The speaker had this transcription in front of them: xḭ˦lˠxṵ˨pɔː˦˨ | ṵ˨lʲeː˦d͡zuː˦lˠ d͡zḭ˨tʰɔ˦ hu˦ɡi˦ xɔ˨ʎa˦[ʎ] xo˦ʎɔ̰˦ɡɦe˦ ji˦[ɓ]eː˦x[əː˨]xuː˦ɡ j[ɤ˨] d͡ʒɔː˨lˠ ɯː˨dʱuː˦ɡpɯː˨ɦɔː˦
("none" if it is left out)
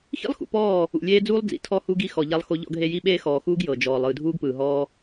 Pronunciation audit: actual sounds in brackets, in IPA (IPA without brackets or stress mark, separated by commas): lˠ, ɓ, ɔː˨, ɤ˨